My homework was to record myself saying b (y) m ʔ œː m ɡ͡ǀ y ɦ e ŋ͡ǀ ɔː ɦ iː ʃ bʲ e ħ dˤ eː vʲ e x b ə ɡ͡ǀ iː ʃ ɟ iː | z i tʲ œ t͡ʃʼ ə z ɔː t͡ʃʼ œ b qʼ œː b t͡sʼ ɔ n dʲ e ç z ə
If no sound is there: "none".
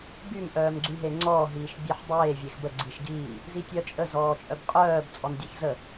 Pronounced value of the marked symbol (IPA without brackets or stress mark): y